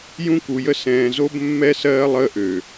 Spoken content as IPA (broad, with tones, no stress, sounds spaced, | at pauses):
j ũ˦ k u˨ j ə˦ s ɛ̃ː˨ z o˦ b mː ɛ˦ s ɜː˦ lˠ əː˦ ʔ ø˨